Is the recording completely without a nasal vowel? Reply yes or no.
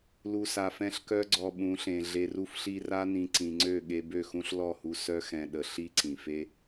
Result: no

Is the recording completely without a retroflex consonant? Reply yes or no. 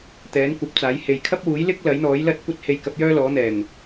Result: yes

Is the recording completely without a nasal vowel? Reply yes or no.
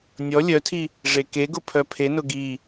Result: yes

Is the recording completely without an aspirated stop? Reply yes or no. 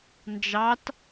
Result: yes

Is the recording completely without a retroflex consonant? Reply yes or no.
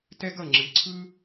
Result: yes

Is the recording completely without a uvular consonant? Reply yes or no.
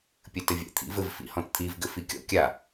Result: yes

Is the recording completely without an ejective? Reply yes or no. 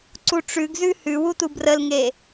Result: yes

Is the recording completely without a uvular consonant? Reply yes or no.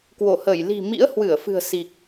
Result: yes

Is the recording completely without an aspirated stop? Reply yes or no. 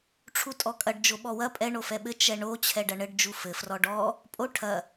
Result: no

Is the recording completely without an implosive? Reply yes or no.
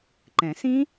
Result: yes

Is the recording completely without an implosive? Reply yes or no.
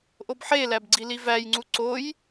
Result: yes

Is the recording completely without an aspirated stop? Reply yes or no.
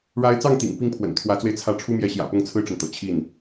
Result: no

